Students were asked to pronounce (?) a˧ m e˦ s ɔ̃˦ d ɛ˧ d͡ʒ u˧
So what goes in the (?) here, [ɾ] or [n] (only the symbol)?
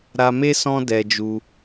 ɾ